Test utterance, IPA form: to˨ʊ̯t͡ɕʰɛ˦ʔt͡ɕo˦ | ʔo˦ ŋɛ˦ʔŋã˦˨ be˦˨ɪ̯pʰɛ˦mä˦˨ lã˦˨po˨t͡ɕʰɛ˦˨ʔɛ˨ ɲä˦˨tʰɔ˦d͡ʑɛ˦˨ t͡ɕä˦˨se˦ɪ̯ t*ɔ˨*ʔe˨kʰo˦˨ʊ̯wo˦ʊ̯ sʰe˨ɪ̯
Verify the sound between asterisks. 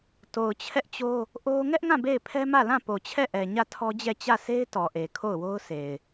correct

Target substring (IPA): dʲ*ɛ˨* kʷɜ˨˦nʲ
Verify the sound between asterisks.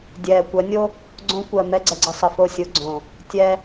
incorrect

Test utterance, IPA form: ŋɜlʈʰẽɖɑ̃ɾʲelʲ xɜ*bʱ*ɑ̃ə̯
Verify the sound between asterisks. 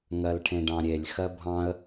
correct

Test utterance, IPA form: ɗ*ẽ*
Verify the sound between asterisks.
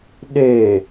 incorrect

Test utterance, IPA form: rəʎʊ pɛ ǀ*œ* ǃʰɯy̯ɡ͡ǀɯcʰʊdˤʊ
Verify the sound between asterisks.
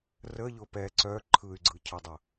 correct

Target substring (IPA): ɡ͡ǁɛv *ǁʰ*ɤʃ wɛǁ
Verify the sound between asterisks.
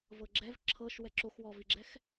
correct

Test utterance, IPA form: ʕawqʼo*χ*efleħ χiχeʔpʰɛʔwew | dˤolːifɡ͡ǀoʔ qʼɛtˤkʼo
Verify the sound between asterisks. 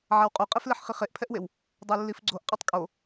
incorrect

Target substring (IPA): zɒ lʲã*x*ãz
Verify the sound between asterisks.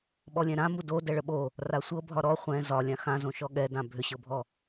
correct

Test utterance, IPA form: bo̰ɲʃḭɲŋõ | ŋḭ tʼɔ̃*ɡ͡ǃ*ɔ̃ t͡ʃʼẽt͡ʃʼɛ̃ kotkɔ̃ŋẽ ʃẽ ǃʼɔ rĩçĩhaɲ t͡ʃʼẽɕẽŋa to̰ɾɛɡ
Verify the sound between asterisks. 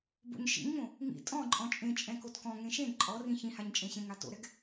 incorrect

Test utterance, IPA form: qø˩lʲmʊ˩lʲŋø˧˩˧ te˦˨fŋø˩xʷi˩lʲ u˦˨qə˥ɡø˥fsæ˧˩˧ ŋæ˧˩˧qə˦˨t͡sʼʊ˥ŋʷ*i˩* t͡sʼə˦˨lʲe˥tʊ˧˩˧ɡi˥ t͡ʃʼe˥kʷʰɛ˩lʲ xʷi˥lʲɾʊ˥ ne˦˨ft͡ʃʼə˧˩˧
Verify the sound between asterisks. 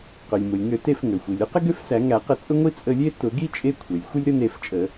incorrect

